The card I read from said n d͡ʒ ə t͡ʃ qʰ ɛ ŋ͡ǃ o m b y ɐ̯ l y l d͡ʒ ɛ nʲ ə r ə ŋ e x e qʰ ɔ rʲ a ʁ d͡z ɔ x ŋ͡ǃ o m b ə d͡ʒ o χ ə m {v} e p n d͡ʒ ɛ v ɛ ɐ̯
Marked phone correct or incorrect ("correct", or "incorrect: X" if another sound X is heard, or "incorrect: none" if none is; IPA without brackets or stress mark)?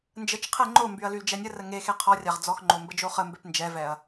incorrect: b